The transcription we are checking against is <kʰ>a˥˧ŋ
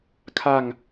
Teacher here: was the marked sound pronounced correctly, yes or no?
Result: yes